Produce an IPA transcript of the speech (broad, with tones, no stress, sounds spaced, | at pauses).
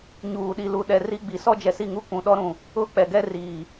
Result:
ɲ uː˨ ɗ i˨ l u˨ ɗ ɛ˨ r i˦ ɡ͡b i˨ s ɔ˦ d͡ʒ ɛ˨ s i˦˨ ŋ u˦ kʷ ũ˨ ɗ ɔ˦ ɾ ũ˨ | ʊ˦ k͡p ɛ˨ ɡ ɛ˦ r iː˨